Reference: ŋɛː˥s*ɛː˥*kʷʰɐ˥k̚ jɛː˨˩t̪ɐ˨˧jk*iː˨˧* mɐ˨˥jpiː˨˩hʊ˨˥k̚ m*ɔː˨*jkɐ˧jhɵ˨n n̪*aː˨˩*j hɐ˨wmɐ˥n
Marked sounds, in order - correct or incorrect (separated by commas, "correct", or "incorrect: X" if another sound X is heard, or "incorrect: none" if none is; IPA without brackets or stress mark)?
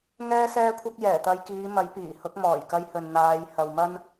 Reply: correct, correct, incorrect: ɔː˨˩, incorrect: aː˨˧